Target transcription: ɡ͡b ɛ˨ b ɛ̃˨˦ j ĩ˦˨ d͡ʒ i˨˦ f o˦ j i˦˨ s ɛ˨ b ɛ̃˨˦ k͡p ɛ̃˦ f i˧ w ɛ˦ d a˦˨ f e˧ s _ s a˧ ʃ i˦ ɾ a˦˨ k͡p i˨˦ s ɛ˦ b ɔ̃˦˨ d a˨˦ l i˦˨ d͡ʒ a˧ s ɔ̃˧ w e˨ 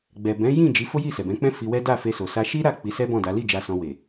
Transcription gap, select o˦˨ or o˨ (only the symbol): o˨